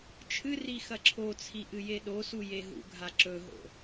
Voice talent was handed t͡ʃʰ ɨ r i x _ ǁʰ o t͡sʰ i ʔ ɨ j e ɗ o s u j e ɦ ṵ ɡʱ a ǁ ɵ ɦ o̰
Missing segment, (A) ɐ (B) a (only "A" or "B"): A